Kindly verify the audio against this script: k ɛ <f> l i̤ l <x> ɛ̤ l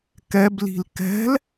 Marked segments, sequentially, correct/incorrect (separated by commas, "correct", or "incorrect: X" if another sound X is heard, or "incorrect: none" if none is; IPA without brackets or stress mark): incorrect: b, incorrect: k